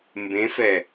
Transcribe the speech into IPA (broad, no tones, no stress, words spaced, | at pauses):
mbẽfɛ